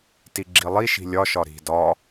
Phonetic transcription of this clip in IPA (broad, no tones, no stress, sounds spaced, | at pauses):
t i ɡ͡ǁ i lˠ i ʃ i̤ lʲ ɒ ʃ ɒ ɾ i̤ d ɒ